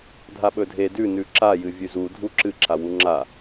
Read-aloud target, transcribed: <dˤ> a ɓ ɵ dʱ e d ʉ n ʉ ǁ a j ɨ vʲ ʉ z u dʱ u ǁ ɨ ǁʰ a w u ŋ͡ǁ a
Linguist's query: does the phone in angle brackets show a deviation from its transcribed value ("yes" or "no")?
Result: yes